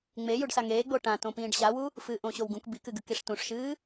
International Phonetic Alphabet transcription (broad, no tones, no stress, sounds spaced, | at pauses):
ŋ͡m e j u ɖ s a ŋ eː ɡ͡b o ʈ ã t õ p ĩː ɖ ɕ a w u | f ɨː ʔ õ ɕ o w ɡ ũ k b i k ɨ ɡ ʉ k i ʂ t ũ ʂ ʃ ɨː